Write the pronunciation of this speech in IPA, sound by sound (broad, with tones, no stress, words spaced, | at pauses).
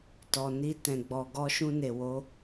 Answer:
tɔ˨ni˧ tɛ̃˨ɡ͡bɔ˨ ɡɔ˧ʃũ˧ne˨ wo˨˦